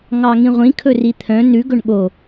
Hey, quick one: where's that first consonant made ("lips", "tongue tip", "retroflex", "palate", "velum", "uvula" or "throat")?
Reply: velum